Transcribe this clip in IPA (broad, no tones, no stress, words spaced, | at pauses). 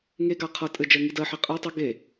ŋeɡa qʰʌ tʼɘd͡ʒɜ ŋidɜħi qʼɜ tˤʌ ɡe